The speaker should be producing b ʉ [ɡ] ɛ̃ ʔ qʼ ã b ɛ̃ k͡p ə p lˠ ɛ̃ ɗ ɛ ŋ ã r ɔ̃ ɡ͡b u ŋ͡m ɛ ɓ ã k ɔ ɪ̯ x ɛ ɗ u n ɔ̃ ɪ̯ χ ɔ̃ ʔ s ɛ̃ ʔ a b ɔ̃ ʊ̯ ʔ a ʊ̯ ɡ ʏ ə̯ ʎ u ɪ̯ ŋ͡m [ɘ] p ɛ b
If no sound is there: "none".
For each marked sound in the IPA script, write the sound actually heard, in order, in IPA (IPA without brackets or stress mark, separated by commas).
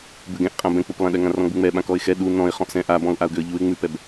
ɡ, ʉ